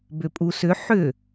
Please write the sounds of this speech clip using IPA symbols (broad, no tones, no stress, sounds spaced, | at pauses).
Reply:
b ʏ pʼ u s ʏ ħ ʏ